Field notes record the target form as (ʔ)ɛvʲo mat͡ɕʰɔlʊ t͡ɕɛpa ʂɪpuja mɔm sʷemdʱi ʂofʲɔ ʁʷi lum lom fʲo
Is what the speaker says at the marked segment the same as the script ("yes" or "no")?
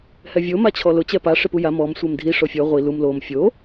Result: no